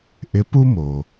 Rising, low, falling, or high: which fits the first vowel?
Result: rising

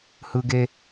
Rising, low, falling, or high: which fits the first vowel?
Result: high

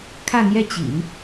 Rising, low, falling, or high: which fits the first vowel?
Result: falling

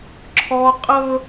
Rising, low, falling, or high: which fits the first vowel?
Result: high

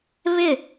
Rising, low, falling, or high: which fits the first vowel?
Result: falling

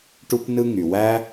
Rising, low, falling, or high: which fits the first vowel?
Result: high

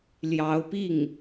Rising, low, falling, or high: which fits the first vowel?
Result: rising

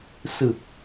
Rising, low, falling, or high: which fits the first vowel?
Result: low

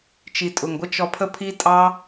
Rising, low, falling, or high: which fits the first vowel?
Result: low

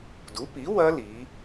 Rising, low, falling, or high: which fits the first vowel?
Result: rising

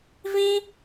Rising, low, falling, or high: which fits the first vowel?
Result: high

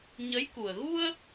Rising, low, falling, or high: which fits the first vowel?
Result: rising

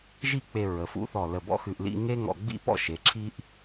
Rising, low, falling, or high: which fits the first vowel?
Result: falling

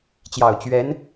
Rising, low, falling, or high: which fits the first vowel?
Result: low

